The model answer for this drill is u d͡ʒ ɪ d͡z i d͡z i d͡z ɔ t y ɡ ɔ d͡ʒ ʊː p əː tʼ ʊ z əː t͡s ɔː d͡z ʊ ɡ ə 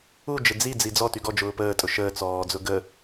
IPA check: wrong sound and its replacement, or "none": z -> ʃ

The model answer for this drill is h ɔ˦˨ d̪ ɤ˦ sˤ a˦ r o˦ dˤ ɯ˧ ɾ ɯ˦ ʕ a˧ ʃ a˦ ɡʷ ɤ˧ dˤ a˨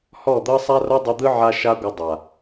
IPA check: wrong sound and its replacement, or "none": ɾ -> d̪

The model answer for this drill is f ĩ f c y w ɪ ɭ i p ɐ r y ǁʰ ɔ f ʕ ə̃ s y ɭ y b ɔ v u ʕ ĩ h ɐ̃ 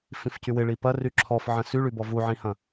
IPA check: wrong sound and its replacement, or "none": none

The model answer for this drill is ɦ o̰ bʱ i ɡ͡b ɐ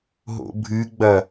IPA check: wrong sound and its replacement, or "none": i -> ɨ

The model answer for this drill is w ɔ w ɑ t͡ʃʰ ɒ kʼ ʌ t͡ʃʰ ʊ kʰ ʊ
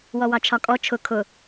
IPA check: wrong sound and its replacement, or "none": ʌ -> ɔ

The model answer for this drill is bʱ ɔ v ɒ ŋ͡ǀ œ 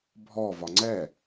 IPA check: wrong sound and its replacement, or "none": œ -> ɛ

